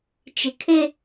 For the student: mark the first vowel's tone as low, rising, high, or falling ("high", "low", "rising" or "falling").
low